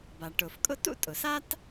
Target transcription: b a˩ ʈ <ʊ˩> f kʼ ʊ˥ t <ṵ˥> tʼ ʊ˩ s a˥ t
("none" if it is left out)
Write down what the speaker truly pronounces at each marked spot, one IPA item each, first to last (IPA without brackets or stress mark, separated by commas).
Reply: ʊ˩, ṵ˥